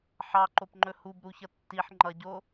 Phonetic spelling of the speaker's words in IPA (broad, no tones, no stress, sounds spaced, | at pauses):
ħ ɑ ǃ o p ŋ͡ǃ ɵ h u b ɾ u ç ʌ tː i ħ ŋ͡ǃ ʌ ɟ o